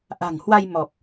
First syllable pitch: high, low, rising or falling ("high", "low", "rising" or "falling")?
low